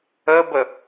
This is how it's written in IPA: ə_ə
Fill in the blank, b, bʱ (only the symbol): b